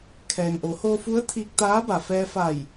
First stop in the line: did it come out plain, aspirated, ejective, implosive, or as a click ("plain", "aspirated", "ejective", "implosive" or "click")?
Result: aspirated